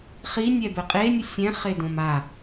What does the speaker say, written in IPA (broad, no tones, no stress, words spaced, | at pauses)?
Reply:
χinʲɛbɘ qʼenʲɘ sʲɛ̃χedõm a